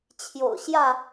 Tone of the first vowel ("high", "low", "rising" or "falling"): low